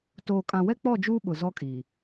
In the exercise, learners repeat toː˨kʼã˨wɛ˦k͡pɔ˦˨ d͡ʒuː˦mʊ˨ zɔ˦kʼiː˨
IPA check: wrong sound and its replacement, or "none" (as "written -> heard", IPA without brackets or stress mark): m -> ɓ